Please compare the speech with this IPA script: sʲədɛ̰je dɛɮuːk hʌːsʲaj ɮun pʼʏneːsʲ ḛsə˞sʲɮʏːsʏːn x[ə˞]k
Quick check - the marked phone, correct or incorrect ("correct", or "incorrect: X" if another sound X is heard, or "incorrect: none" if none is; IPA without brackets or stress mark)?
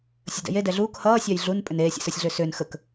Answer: incorrect: ə